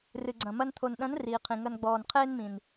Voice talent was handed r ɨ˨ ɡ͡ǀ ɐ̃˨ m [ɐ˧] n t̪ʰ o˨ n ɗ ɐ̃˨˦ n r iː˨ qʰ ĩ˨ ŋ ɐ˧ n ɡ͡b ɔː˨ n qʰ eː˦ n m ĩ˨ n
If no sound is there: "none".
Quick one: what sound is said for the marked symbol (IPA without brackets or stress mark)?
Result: ɐ˧